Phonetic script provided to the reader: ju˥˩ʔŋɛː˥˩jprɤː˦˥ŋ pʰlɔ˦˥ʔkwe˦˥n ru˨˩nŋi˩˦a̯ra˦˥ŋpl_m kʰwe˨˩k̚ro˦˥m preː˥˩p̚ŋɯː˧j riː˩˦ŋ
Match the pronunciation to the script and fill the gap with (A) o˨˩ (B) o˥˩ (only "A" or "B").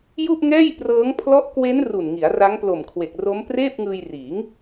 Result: A